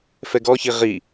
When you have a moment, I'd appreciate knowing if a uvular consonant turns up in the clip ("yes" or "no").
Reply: yes